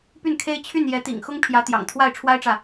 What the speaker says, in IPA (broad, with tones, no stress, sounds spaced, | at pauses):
p y˥˩ n kʰ e˥ ɪ̯ t͡ɕʰ y˥˩ n j ɛ˧˥ t̪ ḭ˨˩ ŋ x ʊ˥ ŋ pʰ j ä˧˥ t̪ j ɑ̰˨˩ ŋ t̪ʰ w a˥˩ ɪ̯ ʈ͡ʂʰ w a˥ ɪ̯ ʈ͡ʂ ä˨